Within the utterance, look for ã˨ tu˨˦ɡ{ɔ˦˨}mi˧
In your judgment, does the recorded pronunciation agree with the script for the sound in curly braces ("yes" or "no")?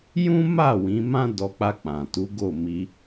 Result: no